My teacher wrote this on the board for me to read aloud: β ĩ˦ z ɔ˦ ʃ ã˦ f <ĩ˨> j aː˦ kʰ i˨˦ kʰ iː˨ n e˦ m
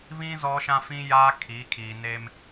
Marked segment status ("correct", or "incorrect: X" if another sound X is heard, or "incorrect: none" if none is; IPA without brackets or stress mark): incorrect: ĩ˦